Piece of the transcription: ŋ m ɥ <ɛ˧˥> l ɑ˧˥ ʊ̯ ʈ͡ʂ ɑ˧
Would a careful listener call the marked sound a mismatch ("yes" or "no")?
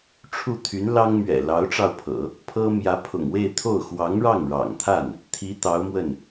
yes